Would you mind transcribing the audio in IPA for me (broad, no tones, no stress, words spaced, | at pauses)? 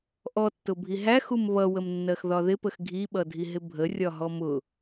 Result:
ʔɔtːʊbʱi ɦæxum βʌwəmnːɜxðɒ ðɪpəx ɡʱiɓʌdʱiɦɪ bʱərʲɒɦɔ mʊ